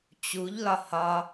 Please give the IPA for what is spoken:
t͡ɕuʎlɒ hɒ

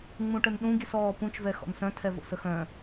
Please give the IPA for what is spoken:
ŋ͡mũʈənɗũ ɡisɔːpũt͡ʃvɛ xɔ̰nsœ̃tʰɛ vo̰səxœ̃

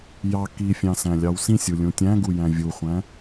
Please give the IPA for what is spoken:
jɑ kifʲɑ̃sæ̃lʲɑw sĩsʲulʲũ tʲæ̃ɡujæ̃ vʲuχʷæ̃

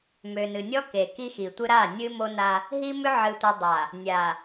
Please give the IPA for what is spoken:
mø˨nɨ˨nʲɔ˦ ke˨ki˦xi˨tʷɨ˦ ɾa˦˨nʲɨ˦mo˦ na˦ | ɦi˦mʏ˦ ʕɨ˨tʷɨ˨ dˤa˨ | nʲa˨

